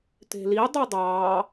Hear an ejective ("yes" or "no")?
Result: no